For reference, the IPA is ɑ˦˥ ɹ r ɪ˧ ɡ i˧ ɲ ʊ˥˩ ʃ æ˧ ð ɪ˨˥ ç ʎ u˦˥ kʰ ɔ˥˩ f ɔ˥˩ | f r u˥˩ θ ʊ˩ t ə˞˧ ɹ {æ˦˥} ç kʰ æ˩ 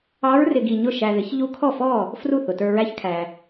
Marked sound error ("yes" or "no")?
no